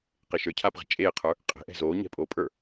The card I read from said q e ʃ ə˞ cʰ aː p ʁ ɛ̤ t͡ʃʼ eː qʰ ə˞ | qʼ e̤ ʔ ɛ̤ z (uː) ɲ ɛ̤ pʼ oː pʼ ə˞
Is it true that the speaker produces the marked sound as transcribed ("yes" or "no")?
no